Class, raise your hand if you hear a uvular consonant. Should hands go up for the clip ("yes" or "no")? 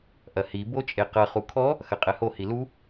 yes